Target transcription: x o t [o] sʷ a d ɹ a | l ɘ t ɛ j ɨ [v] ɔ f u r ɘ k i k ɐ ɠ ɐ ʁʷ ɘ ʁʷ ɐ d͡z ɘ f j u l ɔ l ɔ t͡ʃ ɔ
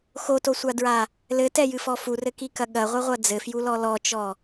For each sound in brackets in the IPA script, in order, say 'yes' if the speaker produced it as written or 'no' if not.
yes, no

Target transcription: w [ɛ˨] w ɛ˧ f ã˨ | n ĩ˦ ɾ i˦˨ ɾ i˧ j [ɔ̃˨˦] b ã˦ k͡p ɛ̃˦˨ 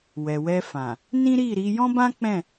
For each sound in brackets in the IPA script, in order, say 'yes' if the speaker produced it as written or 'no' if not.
yes, no

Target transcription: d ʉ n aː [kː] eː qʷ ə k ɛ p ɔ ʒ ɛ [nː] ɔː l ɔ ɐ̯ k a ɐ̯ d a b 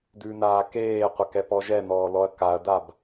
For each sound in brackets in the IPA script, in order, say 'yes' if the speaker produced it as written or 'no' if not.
no, no

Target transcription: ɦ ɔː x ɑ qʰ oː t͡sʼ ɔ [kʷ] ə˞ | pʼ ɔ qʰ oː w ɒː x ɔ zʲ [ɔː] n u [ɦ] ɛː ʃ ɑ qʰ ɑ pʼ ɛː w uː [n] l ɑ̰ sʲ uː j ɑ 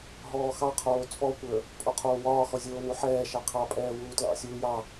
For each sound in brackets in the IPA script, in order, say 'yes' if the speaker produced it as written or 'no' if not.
yes, no, no, no

